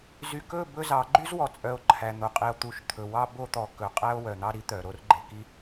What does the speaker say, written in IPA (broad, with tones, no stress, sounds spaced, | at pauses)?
z y˨ k ɵ˦˨ b ɵ˦ z ɑ˨˦ ɡ͡ǃ y˦ z w ɔ˨ t͡sʼ œ˨ o̯ ǃʰ æ˨ n̪ o˨ qʼ e˨ o̯ t̪ u˨ ʃ t̪ʰ ɵ˨ w ɑ˦ b o˦ t̪ ɔ˨ k ɵ˨ qʼ æ˦ o̯ w œ˨ n̪ ɑ˦ ɾ i˦ t̪ œ˨ ɾ o˦ r ɡ͡ǃ e˨ k i˦